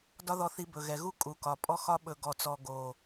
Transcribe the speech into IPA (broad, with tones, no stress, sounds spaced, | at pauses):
d ɒ˦ ð ɔ˧ θ i˧ b ɵ˨ ɣ ɛ˨ ɣ u˦ kʼ u˨ k ɒ˨ pʼ ɔ˦ x ɒ˦ ɓ ɵ˧ ɡ ɔ˨ t͡s ɔ˨ ɡ o˨